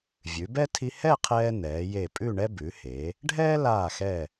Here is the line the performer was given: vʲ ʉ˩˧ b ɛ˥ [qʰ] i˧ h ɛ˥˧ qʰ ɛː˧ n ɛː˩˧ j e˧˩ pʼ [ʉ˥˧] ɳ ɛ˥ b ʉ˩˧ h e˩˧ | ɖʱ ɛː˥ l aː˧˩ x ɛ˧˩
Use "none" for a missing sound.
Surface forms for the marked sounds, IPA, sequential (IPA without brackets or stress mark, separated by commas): tʰ, ʉ˥˧